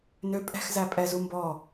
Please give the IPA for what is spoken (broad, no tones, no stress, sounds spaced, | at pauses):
n ø pʼ ɛ̤ x z æ pʼ ɛ z u m b ɔ